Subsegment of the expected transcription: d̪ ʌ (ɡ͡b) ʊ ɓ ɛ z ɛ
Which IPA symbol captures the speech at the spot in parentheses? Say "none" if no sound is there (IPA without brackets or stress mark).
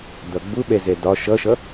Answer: ɡ͡b